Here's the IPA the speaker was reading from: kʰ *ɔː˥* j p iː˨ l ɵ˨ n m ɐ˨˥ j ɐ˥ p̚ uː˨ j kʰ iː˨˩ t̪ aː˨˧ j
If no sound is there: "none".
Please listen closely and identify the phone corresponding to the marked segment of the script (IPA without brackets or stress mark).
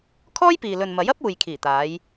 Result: ɔː˥